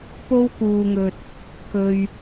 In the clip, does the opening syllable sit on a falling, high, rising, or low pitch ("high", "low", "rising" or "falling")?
high